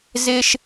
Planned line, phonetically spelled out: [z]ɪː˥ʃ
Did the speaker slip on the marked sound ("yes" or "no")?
no